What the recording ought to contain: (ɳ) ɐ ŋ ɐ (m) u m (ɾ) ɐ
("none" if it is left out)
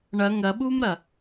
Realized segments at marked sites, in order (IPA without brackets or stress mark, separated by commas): ɳ, ɓ, ɾ